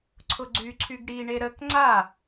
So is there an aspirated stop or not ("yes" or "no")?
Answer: yes